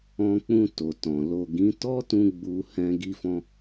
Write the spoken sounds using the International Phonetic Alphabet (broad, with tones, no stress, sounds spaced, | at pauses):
ɔ̃˧ k͡p ũ˧ t o˨ t ɔ̃˨ l o˨ ɡ ĩ˨˦ t ɔ˦ t ũ˧ ɡ͡b u˧ h ɛ̃˧ ɡ i˧ f ɔ̃˧